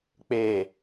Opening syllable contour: low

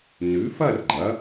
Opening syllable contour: rising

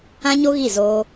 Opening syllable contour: high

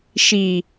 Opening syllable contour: low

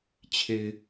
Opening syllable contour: low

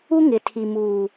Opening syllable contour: high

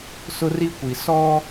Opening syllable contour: high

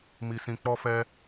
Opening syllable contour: low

